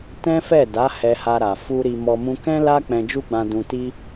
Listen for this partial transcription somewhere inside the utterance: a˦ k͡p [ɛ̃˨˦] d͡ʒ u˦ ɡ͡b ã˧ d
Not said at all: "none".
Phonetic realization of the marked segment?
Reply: ɛ̃˧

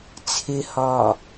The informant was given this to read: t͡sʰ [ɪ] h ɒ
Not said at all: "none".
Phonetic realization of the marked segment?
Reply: ɪ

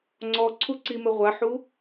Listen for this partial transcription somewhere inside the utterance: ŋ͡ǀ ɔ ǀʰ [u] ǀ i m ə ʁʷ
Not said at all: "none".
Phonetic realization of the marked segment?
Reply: u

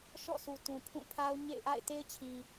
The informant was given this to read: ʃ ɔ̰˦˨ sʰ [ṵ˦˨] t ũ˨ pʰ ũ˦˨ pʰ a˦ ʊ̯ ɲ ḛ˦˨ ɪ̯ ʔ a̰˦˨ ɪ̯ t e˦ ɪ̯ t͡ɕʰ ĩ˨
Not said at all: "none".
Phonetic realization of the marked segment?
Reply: u˨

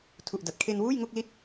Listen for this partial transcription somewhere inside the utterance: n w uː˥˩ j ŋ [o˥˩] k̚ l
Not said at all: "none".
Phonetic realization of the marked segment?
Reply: o˥˩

